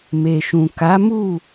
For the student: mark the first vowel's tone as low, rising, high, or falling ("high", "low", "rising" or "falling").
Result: low